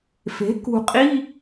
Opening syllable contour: rising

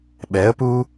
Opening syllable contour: rising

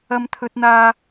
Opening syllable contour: high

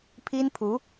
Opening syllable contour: high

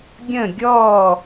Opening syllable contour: falling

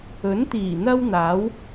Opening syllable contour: rising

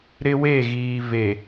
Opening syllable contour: high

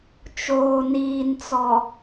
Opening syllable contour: low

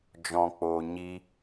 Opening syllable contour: low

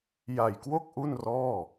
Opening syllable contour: low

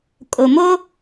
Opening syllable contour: low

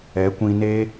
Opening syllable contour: rising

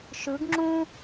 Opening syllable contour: rising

